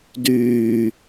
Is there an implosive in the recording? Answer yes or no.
no